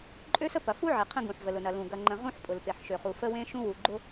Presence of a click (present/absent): present